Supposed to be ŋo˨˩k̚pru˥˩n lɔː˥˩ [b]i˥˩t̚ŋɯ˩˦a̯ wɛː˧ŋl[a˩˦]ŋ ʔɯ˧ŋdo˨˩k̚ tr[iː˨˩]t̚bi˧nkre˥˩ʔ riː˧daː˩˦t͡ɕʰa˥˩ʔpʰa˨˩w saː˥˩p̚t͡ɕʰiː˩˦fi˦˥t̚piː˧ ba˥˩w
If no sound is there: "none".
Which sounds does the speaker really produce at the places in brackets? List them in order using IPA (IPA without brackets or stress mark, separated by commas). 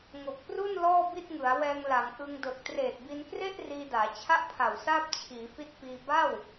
b, a˩˦, eː˨˩